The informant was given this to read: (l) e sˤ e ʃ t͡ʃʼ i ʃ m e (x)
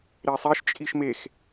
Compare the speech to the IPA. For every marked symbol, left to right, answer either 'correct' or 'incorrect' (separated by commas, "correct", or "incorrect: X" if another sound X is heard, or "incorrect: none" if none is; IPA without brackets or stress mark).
incorrect: ɾ, correct